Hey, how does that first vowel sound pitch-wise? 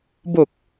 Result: low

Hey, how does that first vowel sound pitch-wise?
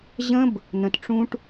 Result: high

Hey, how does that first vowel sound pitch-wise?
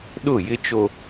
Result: falling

